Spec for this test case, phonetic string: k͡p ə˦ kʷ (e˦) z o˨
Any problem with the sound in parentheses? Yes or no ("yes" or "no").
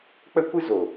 yes